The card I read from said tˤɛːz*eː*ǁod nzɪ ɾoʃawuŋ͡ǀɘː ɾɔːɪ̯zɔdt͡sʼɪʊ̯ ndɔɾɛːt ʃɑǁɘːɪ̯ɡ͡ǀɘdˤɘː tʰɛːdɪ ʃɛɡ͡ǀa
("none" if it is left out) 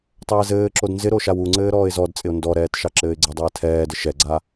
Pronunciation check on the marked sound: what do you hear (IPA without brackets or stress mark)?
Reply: ɘː